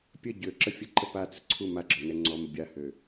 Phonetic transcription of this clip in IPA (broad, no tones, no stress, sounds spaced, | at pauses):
pʲ ə ɟ ø ǁ ə fʲ ə ǃ ə p a t͡s ə ǀʰ u m a ɡ͡ǁ ɔ n ɛ ŋ͡ǀ ɔ m ə bʲ a h ø